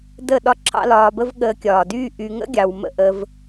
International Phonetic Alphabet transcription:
də˦˨ ɗɒ˦ǁʰɑ̰˦lɒː˧bə˦v ɠəː˧kʲɒː˨dyː˦ ʔy˧ ŋə̰˦ɡʲɑ˨wmə̰˧ ʔə˧v

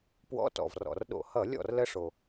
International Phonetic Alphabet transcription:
pwɔ̰˧˥˧tɔ̰˨˩vrɔ̰˨˩rɗo̰˧˩˧ hʌ˧˩˧lʲɔ̰˥˩r lə˦˥ʂo˨˩

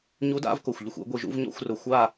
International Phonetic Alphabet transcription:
ɲu˧˥ da̰˥˧vko˧˩xʷ ʎʊ˧xʷḭ˥˧ɡʷi˧ʒṵ˥˧v ɲɔ̰˥˧xʷrʊ˧ xʷa˥˧

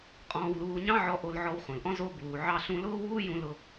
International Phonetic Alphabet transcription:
qʼɔ̃ː˧wluː˧ ɲɑ̃˥ʕɔ˧ ʔo˧lʕɔ˧wχũ˩lʔɔ̃˥ zo˧ buː˩ ʕɑ˧ɬũ˧lʊː˥wuː˥ jũ˧ lʊ˧

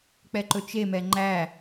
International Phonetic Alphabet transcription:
k͡pɛǃɵt͡ʃemɛ ŋ͡ǃæ

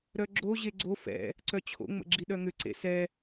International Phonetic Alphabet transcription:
ɾœɡ͡ǁo ʑeɡ͡ǀo fɛ̰ | ǀœt͡ɕʰo̰ ŋ͡mə̰ɡ͡ǁiɗœŋʏ ǀḛsɛ

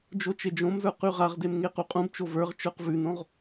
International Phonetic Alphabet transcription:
d͡ʒot͡ʃed͡ʒõmzə˞ qʉʁaʁdem ŋequqʼũbt͡ʃo və˞ʁt͡ʃə˞q vʉnõʁ

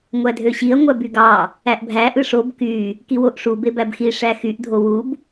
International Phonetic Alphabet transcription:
ŋʷædʱøɕiɐ̯ ŋʷæbyɡɑ | æʔbʱæ ʔɯʂob ky | kiwoʔʂu bebæbxi ʂæxyʔ dʱowub

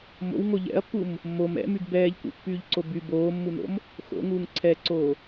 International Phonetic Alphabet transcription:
mo̰wŋo ʎɛ̰ɐ̯pːum | mom ɛ̰myɡ bɛːʎkṵpːyːʎǀo by boːmːuno̰m | xo̰ŋuːŋ ǀʰɛǀoː

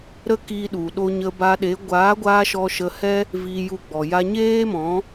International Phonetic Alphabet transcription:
ɾə˦kiː˧ɗu˨ ɗo˧ɲə˧ba˧ ɗe˨˦ ɡʷaː˨˦ɡʷaː˧ ʃɔ˧ʃə˧hɛ˦ | vi˧ju˧ɡ͡bɔ˨ ja˧ɲeː˦mɔ̃˨˦

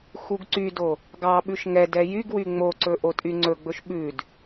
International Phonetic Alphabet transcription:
xuɡǀydo | ɡɑɓʉʃ ŋɛd ɛjyɡwy ŋ͡moǀɵ ʔotʼyŋ͡ǀɵɡ͡bɵʃ ɓʉd

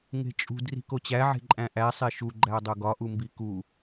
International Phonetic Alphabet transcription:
ŋe̤t͡ʃʼṳd ri̤kot͡ɕæ ʕe̤ǃʼæ̃ʔæ sˤeʃu ɡ͡ǃæɐ̯dˤoɡɒ ʔumbiku

